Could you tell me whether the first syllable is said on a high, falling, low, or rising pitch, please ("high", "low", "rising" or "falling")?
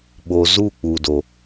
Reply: low